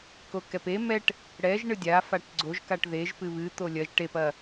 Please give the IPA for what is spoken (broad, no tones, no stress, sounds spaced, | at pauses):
k o k ɛ p e m ɛ ʈ | ɽ ɛ ʒ ɳ ɨ dʲ a f a ʈ ɡ͡ǀ o ʒ k a ʈ ð e ʒ p ɨ β ɨ t̪ o lʲ ɐ ʒ ʈ e p ɐ